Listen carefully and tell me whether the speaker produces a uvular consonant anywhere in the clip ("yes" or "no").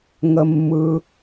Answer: no